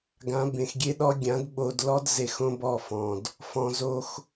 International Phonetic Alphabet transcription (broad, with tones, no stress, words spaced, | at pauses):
ɡã˨˦bẽ˨xɡʲe˦ɗɔ˦ ɡʲã˨˦dɓo˧dlɔ˦d ze˧xõ˦bɔ˦˨fɔ̃˨d | fɔ̃˨zo˧x